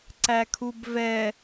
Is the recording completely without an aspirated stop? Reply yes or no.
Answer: no